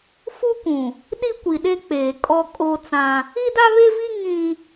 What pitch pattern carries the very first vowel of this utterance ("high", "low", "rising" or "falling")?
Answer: high